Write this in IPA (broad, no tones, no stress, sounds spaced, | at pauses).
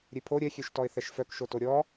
ɾʲ e pʰ o ɾʲ ɛ xʲ ø ʃ t ɔ ɪ̯ θ ɛ ʃ f œ k ʃ o t o ɾʲ ɔ